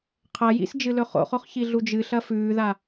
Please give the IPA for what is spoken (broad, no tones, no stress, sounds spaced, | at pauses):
qʰ ɐ j ḭ s d͡ʒ ɨ l ɵ χ o̰ χ o χ ç i ɮ u d͡ʒ ɨ ɬ ɐ f ʉː ð a